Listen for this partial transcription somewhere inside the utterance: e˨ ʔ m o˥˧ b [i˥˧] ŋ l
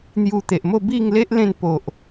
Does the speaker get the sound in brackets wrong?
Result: no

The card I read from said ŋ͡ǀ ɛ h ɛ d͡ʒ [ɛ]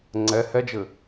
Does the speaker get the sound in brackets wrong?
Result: yes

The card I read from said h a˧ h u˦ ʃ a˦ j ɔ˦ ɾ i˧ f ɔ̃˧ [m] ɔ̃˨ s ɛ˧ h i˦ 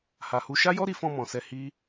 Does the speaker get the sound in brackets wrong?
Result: no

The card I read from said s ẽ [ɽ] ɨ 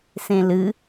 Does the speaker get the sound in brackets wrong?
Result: yes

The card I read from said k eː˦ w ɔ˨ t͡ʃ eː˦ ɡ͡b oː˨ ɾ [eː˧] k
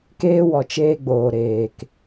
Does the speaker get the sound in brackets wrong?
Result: yes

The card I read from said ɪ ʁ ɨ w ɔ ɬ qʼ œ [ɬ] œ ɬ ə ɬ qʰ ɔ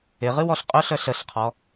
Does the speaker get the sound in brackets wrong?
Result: no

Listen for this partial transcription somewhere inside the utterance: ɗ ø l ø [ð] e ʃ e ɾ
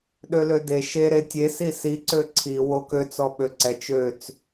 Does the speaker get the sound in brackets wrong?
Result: yes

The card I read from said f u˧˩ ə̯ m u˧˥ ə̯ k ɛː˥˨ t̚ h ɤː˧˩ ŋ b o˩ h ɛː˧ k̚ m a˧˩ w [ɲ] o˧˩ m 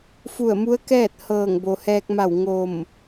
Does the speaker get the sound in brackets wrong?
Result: yes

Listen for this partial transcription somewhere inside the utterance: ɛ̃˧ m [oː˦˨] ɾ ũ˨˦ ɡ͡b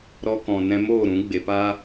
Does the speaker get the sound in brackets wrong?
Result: no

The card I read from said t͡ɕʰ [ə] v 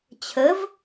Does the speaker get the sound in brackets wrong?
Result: no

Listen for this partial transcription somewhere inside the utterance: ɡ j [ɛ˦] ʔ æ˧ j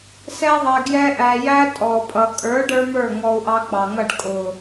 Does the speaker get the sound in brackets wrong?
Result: no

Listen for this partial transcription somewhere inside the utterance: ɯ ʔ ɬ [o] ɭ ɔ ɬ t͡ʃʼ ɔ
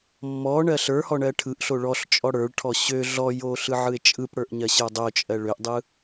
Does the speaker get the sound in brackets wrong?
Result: no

